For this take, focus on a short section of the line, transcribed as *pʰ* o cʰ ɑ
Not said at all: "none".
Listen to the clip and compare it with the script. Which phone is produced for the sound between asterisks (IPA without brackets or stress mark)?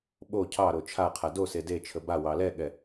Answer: ɓ